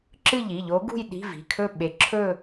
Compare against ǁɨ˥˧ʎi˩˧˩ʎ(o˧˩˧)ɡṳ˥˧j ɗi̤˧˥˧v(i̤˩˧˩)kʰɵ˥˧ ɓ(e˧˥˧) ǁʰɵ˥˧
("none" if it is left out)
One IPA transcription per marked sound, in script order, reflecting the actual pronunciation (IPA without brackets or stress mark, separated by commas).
o˧˥, i̤˩˧˩, e˧